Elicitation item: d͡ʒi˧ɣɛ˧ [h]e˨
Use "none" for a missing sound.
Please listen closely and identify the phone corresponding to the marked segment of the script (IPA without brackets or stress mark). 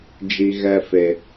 f